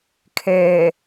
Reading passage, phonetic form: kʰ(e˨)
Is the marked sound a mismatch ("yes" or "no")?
yes